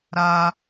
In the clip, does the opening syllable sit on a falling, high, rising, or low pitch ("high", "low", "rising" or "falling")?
high